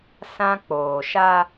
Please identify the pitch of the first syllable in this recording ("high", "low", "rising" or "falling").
high